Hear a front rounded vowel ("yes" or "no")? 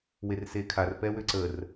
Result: yes